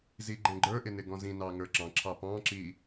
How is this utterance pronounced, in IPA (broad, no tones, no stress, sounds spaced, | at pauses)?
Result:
z i ɡ͡ǃ ɛ̃ ɡ͡ǃ ə˞ ʔ ɪ n ɪ ɡ ɔ̃ z ĩ n ɑ ŋ ə˞ ǁ ɑ̃ ǁʰ ɑ p ɑ̃ ǁ i